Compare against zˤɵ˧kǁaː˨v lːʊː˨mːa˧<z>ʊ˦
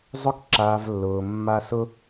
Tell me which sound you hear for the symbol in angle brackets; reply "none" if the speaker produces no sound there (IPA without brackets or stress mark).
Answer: s